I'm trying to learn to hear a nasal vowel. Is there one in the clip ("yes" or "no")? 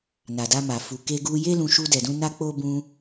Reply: yes